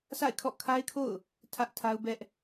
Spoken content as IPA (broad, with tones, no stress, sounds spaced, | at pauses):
s a̰˦˨ ɪ̯ kʰ ɔ̰˦˨ kʰ a˦ ɪ̯ kʰ o̰˦˨ ʊ̯ | tʰ ä˦ ʔ tʰ a˦ ʊ̯ b ɛ˦ ʔ